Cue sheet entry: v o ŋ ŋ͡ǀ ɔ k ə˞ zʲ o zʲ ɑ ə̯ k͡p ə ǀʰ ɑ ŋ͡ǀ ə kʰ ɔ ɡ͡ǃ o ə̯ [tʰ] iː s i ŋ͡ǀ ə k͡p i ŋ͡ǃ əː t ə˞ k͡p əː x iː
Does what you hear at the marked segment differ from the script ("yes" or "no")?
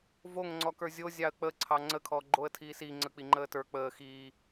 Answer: no